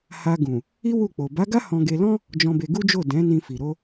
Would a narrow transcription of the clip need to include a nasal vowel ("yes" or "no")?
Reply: yes